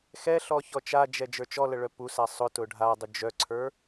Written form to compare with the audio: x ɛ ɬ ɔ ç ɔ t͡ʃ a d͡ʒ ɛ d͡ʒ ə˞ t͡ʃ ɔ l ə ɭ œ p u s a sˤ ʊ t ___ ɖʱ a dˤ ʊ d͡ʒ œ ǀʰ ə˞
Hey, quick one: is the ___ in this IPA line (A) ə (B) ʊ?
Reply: B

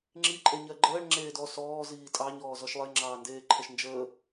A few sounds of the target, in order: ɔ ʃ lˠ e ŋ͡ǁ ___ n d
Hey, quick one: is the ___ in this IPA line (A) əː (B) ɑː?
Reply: B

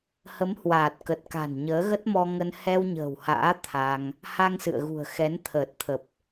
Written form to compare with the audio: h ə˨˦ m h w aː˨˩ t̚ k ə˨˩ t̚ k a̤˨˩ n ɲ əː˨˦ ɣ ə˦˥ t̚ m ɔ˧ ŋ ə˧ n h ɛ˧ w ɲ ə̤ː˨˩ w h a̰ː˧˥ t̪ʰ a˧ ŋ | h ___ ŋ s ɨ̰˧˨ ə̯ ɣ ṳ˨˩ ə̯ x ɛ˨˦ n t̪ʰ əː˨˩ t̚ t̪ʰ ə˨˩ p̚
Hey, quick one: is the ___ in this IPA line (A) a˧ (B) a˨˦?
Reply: A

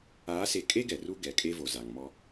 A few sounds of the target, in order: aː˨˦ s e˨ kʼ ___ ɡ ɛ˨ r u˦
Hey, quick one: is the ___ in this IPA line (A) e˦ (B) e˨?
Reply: A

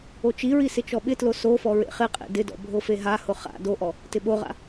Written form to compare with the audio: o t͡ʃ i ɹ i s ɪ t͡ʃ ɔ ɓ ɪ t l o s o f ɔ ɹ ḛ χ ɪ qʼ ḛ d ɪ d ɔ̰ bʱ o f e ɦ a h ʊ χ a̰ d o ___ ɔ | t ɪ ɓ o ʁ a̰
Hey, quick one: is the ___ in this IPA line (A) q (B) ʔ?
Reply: B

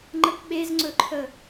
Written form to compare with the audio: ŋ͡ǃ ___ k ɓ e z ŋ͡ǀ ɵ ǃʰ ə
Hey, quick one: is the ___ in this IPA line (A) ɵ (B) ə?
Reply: B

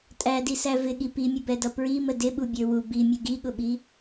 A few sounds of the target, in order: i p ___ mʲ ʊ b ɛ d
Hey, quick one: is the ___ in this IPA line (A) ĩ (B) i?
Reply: B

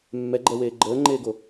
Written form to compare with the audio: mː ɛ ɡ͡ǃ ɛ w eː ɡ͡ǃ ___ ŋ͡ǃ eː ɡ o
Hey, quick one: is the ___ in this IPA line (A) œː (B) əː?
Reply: B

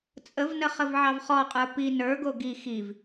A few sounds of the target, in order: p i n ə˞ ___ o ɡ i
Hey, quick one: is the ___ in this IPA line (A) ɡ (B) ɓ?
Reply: A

